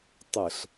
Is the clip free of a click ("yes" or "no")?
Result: yes